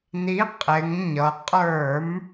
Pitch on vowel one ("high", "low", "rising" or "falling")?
rising